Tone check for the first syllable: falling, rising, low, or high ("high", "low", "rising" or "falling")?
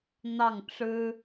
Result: falling